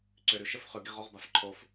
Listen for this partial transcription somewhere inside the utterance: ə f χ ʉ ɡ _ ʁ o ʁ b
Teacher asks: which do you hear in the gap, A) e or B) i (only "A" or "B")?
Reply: B